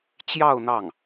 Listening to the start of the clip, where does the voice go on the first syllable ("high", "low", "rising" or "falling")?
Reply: falling